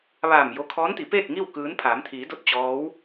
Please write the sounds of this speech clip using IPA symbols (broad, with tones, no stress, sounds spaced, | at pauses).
ʋ aː˧˩ m j o˧ kʰ ɔː˧˥ n t̪ i˩˧ p eː˥˨ k̚ ŋ i˥˨ w k ɯː˧˥ n pʰ aː˩˧ m t̪ʰ iː˩˧ d o˧˥ t̚ t͡ɕ ɔː˧˥ w